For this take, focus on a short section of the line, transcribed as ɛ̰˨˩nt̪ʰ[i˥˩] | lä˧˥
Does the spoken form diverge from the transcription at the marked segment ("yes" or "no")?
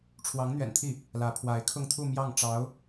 no